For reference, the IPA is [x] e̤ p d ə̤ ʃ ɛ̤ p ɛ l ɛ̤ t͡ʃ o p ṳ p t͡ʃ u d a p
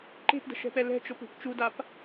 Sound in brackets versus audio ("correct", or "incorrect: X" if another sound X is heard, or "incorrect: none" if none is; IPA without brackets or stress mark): incorrect: ǃ